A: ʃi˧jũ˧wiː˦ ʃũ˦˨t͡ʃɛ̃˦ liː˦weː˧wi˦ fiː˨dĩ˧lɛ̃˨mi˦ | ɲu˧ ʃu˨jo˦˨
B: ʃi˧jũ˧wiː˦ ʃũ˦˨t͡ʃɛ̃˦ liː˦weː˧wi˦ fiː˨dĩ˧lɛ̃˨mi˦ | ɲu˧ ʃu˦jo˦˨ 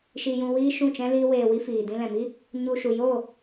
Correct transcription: A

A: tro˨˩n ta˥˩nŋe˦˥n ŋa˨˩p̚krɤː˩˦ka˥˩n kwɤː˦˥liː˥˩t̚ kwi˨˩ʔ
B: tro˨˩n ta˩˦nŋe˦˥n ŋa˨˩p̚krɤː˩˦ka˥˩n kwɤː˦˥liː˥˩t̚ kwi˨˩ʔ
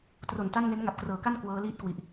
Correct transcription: A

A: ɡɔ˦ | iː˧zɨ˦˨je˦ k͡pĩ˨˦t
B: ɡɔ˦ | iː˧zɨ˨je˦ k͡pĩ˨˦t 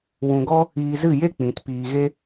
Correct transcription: A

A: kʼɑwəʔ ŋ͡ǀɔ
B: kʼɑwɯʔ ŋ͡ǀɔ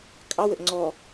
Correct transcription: A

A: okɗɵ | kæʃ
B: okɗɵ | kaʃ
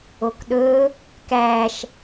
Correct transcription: A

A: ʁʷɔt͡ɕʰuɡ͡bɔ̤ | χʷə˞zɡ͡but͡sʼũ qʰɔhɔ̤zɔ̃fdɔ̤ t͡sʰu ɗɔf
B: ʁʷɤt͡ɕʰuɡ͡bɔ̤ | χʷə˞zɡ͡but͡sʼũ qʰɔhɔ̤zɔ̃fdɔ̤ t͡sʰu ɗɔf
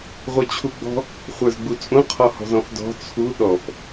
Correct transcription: B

